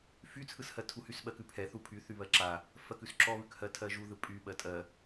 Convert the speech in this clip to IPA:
f y t͡sʰ ɯ s h ɜ tʰ u h y s ɓ ɜ k ʉ pʰ ɛ θ u pʰ y θ y β ɜ ǁ a | f ɜ k ʉ s ǁ ɔ β ʉ k h ɜ tʰ ɜ ʒ u ð ɯ pʼ y ɓ ɜ tʼ ɜ

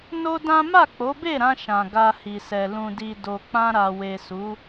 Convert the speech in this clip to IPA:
n o˦ d ã˦ m a˦˨ k͡p o˨˦ b e˦˨ ɾ ã˧ ʃ ã˨ ɡ a˧ h i˨ s ɛ˨ l ũ˨ d i˨ d o˨ k͡p ã˧ ɾ a˨ w e˨ s u˨˦

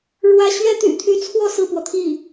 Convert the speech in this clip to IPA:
ɻ w ä˧˥ ɕ ɥ ɛ˥ t̪ y̰˨˩ t̪ʰ y˧˥ t͡sʰ w ɔ˥˧ s ɹ̩˥˩ p w ɔ˩ t̪ʰ i˥˩

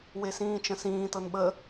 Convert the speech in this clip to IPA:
w e s ĩː t͡ʃ ə̃ s ĩː t ɤ n ɓ ə

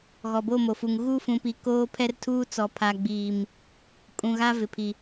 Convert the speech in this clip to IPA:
ɣ ɔ˨ b o˦˨ m o˨ f u˨ ŋ ɣ uː˦ f ũ˨ p i˨ k oː˦ pʰ ɛ˦ r tʰ uː˦ t͡s ɔ˨ pʰ a˨ ɡ͡b iː˨ m | kʼ ũ˨ ɣ a˦ v ɪ˨ pʰ i˨

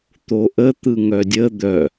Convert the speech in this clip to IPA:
t̪ o ʔ ə t̪ ɯ ŋ œ dʲ ə d̪ œ

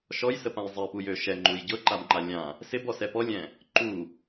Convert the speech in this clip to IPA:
ʃ ɔ j s ə p ã j zˤ ɛ p u j ø ʃ ɛ ŋ͡ǃ u j ɟ ɤ ǃ a b ŋ͡ǃ a lʲ ã | s ɪ b ɔ s ɛ p ɔ lʲ ɛ̃ | ǃ u

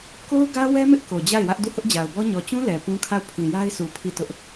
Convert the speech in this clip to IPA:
k o˦ ʊ̯ ɡ ä˦ w ɛ˦ m ɪ˦ ʔ k o˨ d͡ʑ a˦˨ ɪ̯ w ä˦ ʔ d u˦˨ h ʊ˦ ʔ d͡ʑ a˨ ʊ̯ b ɔ˦ ɲ ɔ˨ t͡ɕ ũ˦ l ɛ˨ p ũ˦ kʰ a˦˨ ʊ̯ pʰ ĩ˨ j a˦ ɪ̯ sʰ u˨ pʰ i˦˨ t ʊ˦ ʔ

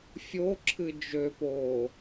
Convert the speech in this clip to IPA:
fʲ o ǁʰ ɨ d͡ʒ ø p oː

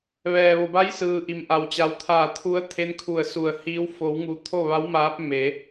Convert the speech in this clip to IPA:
ʋ ɛː˩ ʋ o˩ b a˧˥ j s ɯː˩ ʔ i˩ m ʔ a˩ w t͡ɕ a˩˧ w t̪ʰ aː˧˩ t̪ʰ u˧˥ ə̯ t̪ʰ e˧˥ n kʰ u˧˩ ə̯ s u˧˩ ə̯ h iː˧˥ w f o˩˧ w ŋ u˩˧ t̪ʰ o˥˨ ʋ a˧˥ w m aː˧˥ p̚ m e˩˧

